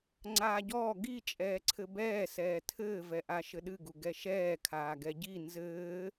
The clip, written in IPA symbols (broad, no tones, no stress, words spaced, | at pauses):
ŋ͡ǀaːɟɔː ɡi t͡ʃʼɛːǀʰɘbɛː sɛːtʰɘːvɛʔa ʃɘɗɨɡu ɡɛʃɛːkʰaː ɡɛɟi nzɘː